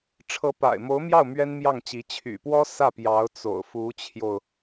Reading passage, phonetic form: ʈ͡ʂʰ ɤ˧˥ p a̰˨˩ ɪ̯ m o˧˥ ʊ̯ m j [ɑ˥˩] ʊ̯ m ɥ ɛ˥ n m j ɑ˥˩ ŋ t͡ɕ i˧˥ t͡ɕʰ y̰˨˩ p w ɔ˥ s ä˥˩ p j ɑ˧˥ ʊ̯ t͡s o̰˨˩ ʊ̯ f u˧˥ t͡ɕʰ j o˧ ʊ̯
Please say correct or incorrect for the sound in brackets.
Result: correct